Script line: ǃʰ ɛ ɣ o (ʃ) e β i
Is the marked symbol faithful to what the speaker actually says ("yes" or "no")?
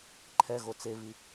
no